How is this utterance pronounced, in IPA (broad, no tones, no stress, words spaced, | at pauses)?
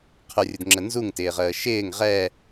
qʰʊrʲʊdŋ͡ǁə nzuŋtɪːʁəː ʃɪːŋ ʁɛ